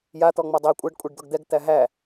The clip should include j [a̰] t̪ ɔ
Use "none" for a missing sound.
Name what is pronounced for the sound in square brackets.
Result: a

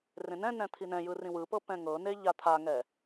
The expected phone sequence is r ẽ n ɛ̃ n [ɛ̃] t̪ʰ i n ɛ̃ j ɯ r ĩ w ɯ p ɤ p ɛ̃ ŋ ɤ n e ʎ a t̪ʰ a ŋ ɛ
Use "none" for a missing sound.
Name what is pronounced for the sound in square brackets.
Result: ɛ̃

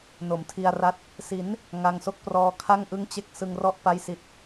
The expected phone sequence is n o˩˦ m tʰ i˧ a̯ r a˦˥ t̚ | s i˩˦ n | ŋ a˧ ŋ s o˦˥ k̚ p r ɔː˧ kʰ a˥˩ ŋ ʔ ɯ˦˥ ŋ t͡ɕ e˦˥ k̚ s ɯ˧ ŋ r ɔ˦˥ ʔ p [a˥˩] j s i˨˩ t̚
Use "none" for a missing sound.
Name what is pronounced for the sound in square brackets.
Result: a˦˥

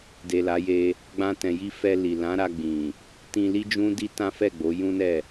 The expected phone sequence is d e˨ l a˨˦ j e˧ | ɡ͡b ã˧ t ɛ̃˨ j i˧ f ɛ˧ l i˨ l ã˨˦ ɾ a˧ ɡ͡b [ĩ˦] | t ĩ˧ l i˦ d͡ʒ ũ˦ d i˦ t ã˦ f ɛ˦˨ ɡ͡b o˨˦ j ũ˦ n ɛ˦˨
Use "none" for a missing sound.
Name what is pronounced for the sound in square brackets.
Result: ĩ˨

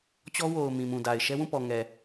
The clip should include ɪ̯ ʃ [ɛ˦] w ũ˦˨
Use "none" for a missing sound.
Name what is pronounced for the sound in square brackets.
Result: ɛ˦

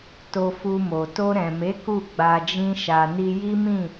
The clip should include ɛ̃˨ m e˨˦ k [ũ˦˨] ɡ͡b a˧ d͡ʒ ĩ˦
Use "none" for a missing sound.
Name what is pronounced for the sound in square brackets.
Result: u˦˨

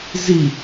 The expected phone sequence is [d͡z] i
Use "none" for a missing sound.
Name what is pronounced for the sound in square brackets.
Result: z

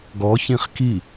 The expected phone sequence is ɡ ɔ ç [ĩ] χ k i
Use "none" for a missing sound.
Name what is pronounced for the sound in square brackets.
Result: ĩ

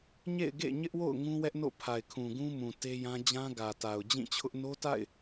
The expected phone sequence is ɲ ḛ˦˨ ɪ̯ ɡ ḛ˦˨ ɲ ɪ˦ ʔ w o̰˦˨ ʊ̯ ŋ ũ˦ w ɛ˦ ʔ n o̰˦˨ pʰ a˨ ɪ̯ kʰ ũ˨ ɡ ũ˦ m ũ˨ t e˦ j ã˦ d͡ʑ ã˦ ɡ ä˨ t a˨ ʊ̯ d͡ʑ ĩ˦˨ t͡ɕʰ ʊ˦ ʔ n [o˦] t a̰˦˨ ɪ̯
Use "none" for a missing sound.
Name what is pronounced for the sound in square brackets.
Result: o˦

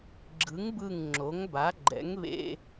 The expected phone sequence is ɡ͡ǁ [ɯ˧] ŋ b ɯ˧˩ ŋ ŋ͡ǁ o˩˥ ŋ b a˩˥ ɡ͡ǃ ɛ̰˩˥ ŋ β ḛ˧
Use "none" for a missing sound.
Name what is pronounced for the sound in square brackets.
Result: ɯ˩˥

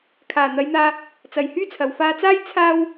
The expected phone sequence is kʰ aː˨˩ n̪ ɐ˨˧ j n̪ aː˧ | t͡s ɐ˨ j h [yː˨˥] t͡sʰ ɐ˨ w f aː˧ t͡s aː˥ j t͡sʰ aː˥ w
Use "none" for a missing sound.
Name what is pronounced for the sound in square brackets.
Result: yː˥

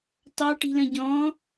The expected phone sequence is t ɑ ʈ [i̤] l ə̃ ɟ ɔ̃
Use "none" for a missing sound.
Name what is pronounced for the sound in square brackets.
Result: i̤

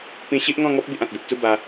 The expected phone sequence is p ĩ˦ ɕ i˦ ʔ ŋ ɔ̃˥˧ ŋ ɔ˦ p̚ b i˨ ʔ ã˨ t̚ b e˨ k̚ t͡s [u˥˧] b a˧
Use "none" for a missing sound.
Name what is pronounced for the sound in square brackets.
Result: u˥˧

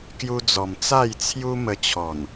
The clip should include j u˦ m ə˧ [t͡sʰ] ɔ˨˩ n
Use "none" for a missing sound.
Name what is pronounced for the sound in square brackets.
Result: t͡ɕʰ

